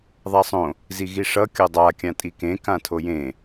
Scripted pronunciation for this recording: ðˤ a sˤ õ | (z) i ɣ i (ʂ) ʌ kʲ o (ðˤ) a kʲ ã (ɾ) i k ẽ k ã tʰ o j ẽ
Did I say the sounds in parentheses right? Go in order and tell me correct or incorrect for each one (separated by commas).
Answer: correct, correct, incorrect, incorrect